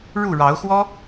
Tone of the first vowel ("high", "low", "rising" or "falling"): falling